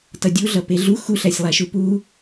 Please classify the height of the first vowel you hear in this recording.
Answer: mid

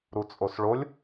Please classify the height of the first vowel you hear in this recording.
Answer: high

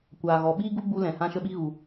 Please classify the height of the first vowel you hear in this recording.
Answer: low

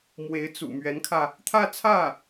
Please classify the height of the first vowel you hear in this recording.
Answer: mid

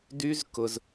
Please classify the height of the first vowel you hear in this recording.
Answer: high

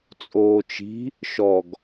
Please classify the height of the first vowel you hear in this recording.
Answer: mid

